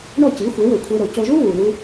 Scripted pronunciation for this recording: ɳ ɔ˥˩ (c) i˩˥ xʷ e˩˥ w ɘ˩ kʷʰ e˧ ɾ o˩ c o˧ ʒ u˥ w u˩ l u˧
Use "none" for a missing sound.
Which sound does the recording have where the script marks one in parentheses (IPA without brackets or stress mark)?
c